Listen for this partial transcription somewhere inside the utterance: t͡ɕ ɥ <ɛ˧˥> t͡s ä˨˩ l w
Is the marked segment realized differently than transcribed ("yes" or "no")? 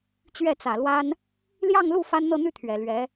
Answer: yes